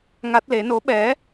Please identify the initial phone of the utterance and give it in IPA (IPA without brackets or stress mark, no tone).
ŋ